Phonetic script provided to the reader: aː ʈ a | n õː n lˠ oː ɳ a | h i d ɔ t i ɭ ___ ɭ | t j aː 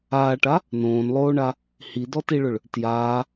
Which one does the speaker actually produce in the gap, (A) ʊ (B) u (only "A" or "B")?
A